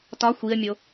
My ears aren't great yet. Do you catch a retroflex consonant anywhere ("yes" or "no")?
no